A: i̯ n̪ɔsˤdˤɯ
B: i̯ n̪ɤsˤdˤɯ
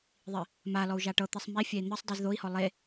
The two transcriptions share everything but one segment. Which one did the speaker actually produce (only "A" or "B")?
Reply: B